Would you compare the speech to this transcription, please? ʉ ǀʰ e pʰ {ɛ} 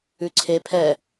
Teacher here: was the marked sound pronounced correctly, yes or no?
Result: yes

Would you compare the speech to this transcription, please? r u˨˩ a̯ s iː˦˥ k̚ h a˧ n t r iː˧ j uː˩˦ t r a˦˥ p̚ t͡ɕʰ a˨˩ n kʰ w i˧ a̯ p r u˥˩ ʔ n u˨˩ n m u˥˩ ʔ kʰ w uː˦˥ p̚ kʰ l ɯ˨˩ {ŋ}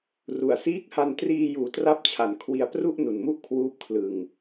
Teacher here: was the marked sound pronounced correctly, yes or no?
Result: yes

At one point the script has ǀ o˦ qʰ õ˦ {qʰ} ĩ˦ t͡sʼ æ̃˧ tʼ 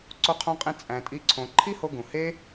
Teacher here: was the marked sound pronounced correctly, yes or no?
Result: no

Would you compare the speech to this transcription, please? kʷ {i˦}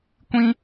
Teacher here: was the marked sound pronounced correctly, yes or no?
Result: no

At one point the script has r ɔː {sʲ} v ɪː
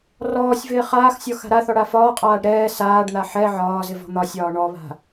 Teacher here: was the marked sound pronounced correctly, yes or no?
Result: yes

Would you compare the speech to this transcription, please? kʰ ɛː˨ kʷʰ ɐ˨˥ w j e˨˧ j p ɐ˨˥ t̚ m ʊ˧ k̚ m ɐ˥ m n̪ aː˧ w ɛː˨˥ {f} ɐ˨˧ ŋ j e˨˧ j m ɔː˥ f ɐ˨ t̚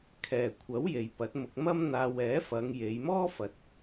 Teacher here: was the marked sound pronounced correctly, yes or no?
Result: yes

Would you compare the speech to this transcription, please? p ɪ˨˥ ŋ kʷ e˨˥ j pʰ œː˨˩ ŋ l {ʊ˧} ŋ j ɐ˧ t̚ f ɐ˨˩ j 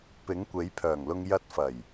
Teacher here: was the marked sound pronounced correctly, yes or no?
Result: yes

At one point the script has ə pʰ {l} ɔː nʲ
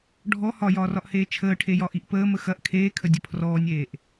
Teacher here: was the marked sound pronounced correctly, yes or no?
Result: no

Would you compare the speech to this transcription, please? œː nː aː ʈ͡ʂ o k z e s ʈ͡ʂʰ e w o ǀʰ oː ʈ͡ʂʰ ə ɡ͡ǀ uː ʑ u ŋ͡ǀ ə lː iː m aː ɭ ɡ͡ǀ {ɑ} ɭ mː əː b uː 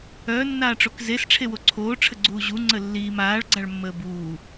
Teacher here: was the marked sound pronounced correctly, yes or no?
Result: no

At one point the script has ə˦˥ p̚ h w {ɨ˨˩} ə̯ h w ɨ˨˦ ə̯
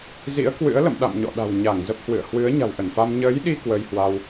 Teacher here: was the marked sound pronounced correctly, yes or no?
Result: no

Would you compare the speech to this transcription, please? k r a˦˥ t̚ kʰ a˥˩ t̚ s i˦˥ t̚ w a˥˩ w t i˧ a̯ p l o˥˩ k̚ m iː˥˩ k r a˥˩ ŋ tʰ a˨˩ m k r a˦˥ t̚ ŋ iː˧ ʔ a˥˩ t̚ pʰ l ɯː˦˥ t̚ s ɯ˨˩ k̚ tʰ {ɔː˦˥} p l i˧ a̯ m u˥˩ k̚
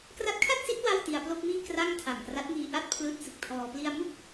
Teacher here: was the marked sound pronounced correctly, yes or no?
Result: no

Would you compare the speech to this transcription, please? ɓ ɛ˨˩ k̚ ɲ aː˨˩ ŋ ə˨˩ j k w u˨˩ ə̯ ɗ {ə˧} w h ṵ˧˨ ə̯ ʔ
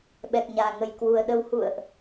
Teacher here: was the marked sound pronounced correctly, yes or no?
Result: yes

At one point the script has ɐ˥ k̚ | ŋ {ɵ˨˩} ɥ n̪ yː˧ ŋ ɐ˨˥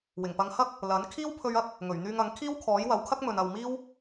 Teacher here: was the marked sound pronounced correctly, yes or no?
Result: yes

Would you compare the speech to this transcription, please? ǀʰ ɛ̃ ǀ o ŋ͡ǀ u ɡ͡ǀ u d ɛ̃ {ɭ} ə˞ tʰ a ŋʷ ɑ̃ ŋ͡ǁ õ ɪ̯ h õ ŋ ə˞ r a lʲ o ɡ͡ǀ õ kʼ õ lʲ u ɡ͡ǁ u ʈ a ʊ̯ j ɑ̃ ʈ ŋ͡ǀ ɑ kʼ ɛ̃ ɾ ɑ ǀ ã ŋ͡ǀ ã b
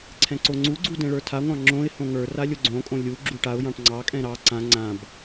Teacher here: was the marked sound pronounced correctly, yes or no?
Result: yes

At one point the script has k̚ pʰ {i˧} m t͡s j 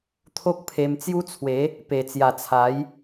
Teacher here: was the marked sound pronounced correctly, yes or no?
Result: no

